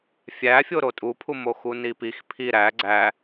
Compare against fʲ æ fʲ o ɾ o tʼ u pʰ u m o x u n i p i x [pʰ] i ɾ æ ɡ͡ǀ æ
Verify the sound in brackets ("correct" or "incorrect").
correct